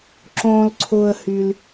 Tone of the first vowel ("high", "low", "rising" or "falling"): low